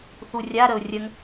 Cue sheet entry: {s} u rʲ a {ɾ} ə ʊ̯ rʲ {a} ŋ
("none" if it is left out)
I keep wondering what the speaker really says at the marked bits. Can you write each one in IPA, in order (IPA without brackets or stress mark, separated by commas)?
θ, ɾ, ə